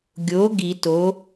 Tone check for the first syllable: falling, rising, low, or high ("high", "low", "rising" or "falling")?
rising